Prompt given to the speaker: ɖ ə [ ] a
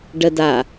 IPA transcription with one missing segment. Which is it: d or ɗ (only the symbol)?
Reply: d